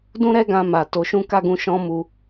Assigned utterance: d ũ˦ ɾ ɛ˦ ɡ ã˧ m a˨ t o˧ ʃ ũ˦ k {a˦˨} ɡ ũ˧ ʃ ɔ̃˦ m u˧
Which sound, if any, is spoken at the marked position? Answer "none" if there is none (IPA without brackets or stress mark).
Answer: a˦˨